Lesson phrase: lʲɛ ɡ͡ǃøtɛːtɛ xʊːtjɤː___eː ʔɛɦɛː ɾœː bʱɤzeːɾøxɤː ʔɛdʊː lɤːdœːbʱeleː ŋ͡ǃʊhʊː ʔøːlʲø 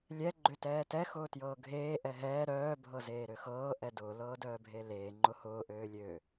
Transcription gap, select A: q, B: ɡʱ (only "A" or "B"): B